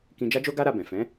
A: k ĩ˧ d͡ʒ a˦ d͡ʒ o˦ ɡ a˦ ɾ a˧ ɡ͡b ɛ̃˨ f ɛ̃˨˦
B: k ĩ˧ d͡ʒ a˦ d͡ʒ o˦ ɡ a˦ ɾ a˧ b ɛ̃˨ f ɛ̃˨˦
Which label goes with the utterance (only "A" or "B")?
B